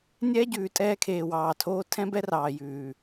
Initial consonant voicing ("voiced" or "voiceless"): voiced